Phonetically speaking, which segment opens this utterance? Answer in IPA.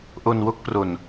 ʔ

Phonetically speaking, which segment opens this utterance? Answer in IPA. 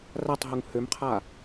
r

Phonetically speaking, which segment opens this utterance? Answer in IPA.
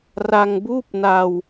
r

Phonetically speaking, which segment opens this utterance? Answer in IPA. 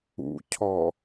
ṵ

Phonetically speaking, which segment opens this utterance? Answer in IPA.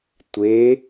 tʷ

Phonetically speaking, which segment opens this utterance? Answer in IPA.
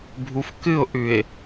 bʱ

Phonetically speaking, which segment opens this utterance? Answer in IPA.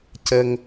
c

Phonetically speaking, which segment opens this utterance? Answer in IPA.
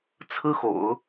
t͡sʰ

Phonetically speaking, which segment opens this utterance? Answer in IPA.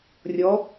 rʲ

